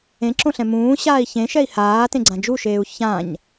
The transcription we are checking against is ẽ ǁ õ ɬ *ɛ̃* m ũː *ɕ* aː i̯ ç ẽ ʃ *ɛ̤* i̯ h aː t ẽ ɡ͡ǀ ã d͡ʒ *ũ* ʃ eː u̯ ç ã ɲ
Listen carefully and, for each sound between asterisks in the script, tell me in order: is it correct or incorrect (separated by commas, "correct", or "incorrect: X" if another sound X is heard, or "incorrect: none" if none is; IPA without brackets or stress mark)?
correct, correct, incorrect: ɛ, incorrect: u